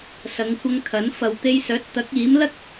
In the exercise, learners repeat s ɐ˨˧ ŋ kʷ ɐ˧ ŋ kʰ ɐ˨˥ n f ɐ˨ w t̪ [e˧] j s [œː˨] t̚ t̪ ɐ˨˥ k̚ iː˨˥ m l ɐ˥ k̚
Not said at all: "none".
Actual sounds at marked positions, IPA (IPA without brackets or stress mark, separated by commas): e˧, œː˨˥